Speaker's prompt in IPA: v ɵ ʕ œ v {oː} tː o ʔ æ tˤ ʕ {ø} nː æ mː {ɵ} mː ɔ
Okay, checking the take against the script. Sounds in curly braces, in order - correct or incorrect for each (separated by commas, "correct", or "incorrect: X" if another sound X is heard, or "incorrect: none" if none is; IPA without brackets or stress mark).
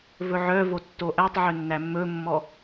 incorrect: o, correct, correct